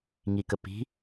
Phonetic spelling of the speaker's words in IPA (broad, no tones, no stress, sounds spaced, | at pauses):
ŋ i k ə p i̤